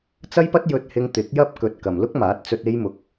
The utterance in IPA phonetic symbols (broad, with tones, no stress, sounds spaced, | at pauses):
t͡s ɐ˥ j p ɐ˥ t̚ j ɵ˧ t̚ h ɪ˧ ŋ t̪ ɪ˨˥ k̚ j ɐ˥ p̚ k ɵ˨ t̚ k ɐ˨ m l ʊ˥ k̚ m aː˨˥ t̚ t͡s ɵ˧ t̚ e˥ j m ʊ˧ k̚